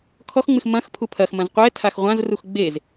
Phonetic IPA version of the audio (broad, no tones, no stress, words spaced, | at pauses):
kʰɔxŋ͡mɨx mɐ̃x pʰupʰɐxmɐ̃z qʷɛ tʰaxʁʷãz ruxɡ͡bez